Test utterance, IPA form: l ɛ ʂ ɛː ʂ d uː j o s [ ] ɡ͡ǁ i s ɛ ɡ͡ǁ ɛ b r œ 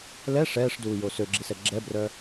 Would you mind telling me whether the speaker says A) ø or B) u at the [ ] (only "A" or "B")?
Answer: A